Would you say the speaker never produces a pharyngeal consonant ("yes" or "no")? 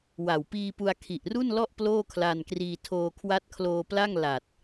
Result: yes